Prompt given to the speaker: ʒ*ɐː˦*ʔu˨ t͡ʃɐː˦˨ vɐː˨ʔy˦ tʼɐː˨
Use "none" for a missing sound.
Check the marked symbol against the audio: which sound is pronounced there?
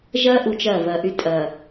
ɐː˦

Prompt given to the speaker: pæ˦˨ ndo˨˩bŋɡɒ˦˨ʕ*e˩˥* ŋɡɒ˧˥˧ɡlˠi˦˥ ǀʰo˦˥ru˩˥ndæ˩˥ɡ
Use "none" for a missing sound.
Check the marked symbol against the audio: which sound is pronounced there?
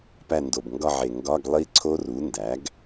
e˨˩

